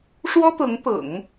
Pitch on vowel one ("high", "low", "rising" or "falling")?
high